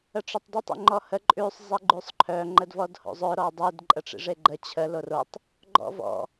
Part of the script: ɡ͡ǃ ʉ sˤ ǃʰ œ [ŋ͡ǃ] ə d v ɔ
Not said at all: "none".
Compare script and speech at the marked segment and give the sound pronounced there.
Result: ŋ͡ǃ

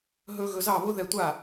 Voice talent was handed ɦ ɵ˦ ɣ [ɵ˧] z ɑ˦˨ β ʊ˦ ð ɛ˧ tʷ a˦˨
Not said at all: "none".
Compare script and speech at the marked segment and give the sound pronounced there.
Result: ɵ˧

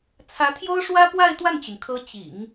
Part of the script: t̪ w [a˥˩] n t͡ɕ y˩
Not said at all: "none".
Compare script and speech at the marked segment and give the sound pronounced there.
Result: a˥˩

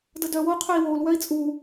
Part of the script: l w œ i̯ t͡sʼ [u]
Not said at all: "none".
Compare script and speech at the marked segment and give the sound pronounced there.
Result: u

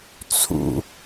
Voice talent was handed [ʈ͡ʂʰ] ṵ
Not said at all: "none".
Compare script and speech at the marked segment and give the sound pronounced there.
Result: t͡sʰ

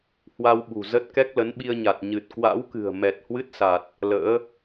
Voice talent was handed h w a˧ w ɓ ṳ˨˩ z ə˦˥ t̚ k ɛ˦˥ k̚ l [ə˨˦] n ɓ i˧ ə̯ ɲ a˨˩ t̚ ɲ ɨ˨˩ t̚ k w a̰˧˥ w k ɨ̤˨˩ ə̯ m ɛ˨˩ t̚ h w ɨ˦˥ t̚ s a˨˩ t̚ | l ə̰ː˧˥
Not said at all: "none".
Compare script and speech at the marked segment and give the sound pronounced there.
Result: ə˨˦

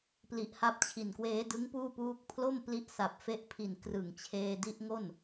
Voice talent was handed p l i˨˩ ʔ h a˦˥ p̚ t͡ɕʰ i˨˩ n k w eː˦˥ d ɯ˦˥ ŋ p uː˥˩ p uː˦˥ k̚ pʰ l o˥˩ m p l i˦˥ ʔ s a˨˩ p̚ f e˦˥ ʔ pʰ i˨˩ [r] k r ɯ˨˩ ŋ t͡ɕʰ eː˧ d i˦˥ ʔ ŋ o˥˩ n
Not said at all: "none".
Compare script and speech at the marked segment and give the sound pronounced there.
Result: n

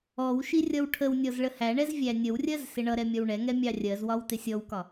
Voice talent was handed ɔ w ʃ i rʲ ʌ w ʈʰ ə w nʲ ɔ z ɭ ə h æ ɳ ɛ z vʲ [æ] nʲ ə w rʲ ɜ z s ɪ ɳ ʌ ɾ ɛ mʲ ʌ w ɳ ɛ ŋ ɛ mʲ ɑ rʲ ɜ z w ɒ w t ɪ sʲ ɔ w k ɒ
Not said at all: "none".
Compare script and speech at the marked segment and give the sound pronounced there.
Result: æ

